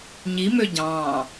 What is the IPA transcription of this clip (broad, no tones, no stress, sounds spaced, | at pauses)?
ɲ i m ø ɟ ɑ̃ː